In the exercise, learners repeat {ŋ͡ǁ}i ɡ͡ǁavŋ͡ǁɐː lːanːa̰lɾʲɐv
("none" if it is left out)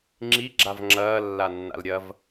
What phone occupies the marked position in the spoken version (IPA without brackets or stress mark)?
ŋ͡ǁ